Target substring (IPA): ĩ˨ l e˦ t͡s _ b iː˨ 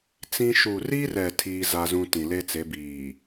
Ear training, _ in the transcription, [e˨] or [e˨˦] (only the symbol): e˨˦